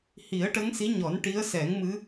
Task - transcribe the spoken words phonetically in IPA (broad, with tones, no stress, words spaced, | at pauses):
hi˨˩˦ə̯ʈə˧˥ŋsi˧˥ɲɔ˨˩˦n ʈi˧˥ə̯sɛ˨˩˦ŋmɨ˧˥